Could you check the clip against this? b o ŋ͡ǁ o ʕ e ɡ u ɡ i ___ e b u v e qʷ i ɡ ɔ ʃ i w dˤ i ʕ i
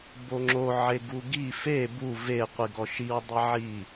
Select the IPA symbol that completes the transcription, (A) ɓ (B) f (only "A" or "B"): B